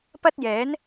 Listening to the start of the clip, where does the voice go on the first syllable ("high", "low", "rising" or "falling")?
high